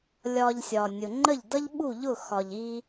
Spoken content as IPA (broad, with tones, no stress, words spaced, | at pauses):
lʲɒ˧ʎsʲɒ˩ nʲʊ˩ŋ͡ǃə˥˩ʎdʌ˥ʎ ɓu˥˩ʎʊ˥˩xɒ˩ʎ i˧